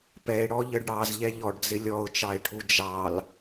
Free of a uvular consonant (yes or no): yes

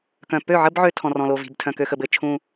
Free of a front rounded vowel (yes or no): no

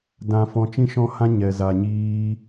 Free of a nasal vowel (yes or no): no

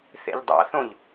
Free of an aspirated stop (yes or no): yes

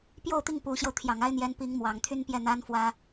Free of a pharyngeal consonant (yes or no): yes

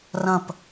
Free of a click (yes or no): yes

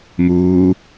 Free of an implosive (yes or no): yes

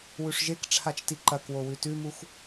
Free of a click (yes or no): no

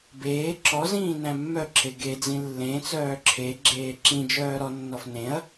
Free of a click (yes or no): no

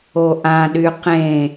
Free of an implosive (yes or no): no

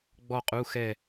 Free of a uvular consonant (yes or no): no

